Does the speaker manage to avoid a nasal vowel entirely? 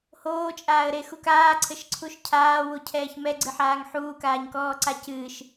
yes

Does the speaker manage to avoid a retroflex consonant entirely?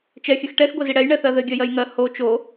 no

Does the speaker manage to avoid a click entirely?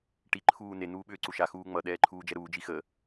no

